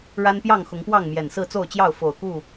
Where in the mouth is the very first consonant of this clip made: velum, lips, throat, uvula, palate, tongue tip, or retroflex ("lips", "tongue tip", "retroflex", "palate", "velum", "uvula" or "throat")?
retroflex